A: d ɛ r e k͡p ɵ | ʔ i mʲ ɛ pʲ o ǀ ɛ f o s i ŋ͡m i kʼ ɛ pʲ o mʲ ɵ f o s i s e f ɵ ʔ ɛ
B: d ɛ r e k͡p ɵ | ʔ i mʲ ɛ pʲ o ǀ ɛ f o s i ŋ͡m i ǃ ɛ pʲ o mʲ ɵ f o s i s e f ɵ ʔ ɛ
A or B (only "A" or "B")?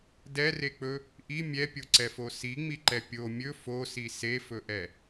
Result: B